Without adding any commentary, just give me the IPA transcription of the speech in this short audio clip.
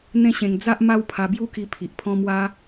n̪ ẽ˦ ɕ ẽ˧ ŋ d͡z a˦ ʔ m a˦ w pʰ a˧ b j u˦ k i˧ pʰ i˨ ʔ pʰ ɔ̃˦ m w a˦

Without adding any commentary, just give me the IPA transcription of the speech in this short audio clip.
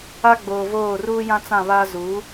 a˦ ɡ͡b oː˨ v oː˦˨ r uː˦ j ã˦ t͡s ã˦˨ β aː˦ z u˨˦

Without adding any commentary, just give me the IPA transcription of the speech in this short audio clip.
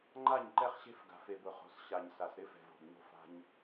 ŋ͡ǃ a˦˨ ɲ ǃ ɛ˦ χ ɕ e̤˦ f ɡ a̤˨ f e˨ b ʊ˨ χ o̤˨ s ɕ a˨ ɲ s a˨ s ɾ ɪ˦ f ɛ̤˨ v o̤˨ b ɲ o̤˦ f a̤˦ ɲ

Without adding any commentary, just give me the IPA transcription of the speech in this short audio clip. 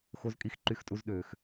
x o˦ z kʼ i˦ x ǃ y˦ x tʼ u˦ z ɗ øː˧ x

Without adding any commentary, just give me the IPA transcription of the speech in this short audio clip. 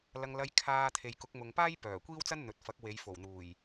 l ɐ˧ ŋ l ɐ˧ j kʰ aː˨ t̪ʰ e˨ j k ʊ˨˥ k̚ m ʊ˨ ŋ p aː˥ j p œː˨˩ kʷ iː˥ w t͡s ɐ˥ n n̪ ɵ˨ t̚ f ɐ˨˥ k̚ w e˨˧ j f o˨˩ w n̪ uː˨˩ j

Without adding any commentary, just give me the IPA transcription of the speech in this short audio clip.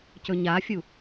c ɵ ɲ a fʲ u

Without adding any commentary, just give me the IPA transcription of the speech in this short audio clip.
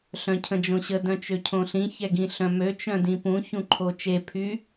ɬ œ̃ cʰ ə̃ d͡ʒ õ ɕ ə d œ̃ t͡ʃ ø cʰ õ ɬ ĩ ç ɛ ɡ ĩ ɬ œ̃ m ø t͡ʃ œ̃ d ĩ p ũ ç ũ ǃʰ o t͡ʃ e pʰ y

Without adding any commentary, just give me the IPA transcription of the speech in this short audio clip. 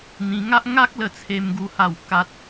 n̪ ĩ˧ ŋ a˦ ʔ ŋ a˦ k̚ l ə˥˧ t͡sʰ e˦ m ɡ u˦ h a˥˧ w k a˦ t̚

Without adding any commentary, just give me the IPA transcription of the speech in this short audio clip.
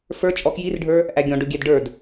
f ə˞ t͡ʃʼ ɔ k j i r ɖʱ ə˞ | ʔ æ ɡʲ ɔ̃ ɖ ʊ ɡʲ ɛ d ɖ ə˞ d

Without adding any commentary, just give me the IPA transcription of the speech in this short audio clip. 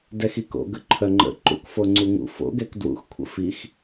d ɛ x i k o̰ ɡ ə ǃʰ œ ŋ͡ǃ ə̰ ǃ ṵ k f o ŋ͡ǀ u ŋ ṵ f o̰ ɡ ɛ k d w ṵ x kʷʰ ə̰ f i x

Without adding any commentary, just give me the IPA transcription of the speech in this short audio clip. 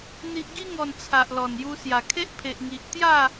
n̪ i˨ ʔ ɡ i˧ ŋ ɔ˨˩ n t͡sʰ a˨ ʔ l ɔ˨˩ n j u˧ s j a˨˩ kʰ e˦ ʔ pʰ e˨ ʔ ŋ i˨ ʔ t̪ j a˥˧

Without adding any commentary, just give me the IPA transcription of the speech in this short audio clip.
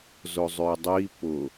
z ʊ zˤ ʏ e̯ dˤ i p ʊ

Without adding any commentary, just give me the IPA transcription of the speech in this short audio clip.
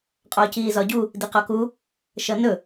qʼ ɒː c iː z ɒ ɟ u | d i q ɒ k u | ʃ ʌ n ɵ

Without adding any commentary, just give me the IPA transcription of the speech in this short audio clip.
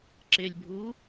ǁ ɪ lʲ bʱ u

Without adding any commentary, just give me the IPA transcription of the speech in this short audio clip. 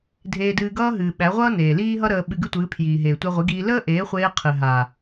dʱ eː˧ d ɨː˧ ɡ ʌː˦ ɦ ɨː˨ ɓ æ˨˦ ʁʷ ʌː˦ n eː˨ l iː˦ ɦ ʌ˦ ɾ əː˧ ɓ ɨ˧ ɡ ɨ˦ tʷ ɨː˨˦ pʰ j iː˨ ɦ eː˨ tʷ æ˧ ʁʷ i˨˦ ɡ iː˧ l əː˦ ʔ eː˨˦ χʷ eː˧ qʰ ɨ˨ ɦ a˨

